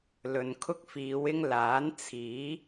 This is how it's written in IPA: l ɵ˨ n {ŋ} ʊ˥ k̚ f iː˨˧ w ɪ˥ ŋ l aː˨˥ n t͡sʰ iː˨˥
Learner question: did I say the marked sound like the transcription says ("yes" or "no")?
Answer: no